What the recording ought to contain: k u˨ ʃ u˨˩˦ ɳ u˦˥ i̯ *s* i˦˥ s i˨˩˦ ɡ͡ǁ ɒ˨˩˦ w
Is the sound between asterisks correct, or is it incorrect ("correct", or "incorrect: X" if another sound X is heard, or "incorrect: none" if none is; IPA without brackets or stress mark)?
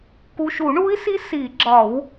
correct